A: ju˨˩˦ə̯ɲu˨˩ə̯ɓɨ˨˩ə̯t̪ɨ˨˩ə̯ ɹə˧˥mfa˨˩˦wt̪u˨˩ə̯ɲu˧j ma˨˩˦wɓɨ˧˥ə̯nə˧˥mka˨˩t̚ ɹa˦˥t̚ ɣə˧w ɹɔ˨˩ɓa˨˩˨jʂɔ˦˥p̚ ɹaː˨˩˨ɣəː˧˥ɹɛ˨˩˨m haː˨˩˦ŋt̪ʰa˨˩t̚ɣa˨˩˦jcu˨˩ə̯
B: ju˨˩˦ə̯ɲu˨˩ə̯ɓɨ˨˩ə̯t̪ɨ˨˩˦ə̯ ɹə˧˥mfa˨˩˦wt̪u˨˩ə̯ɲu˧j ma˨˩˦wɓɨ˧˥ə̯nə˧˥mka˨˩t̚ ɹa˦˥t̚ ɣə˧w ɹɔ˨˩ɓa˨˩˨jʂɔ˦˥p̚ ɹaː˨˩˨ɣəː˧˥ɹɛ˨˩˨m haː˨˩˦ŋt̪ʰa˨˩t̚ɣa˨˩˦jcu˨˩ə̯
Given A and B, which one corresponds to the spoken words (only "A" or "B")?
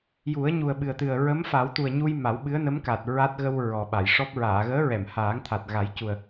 A